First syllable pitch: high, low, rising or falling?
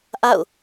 falling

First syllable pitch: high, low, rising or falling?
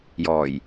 low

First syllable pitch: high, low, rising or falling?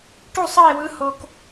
falling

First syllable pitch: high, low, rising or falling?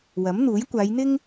rising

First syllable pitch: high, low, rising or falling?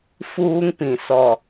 high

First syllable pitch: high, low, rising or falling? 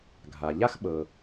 low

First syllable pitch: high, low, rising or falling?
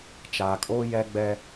low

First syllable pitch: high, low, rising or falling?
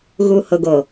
low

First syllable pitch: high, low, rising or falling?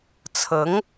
rising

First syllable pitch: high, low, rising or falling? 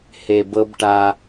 low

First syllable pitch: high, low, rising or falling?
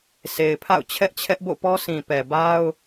low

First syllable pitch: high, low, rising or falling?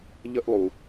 high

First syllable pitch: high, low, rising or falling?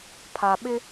low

